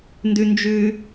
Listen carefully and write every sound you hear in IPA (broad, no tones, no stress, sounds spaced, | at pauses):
n d ʉ n d͡ʒ ʉ